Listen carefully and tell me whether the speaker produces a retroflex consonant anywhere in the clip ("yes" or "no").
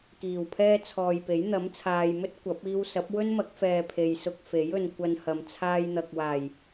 no